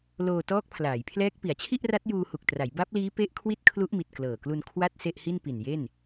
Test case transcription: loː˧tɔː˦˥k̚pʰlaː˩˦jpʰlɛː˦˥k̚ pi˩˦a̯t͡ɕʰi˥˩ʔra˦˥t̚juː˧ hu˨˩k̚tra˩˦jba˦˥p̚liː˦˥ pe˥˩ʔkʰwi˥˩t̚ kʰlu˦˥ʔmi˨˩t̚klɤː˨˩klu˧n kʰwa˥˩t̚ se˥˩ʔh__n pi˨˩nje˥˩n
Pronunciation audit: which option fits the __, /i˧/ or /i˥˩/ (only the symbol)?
i˥˩